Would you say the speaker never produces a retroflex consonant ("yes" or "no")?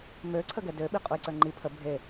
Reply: yes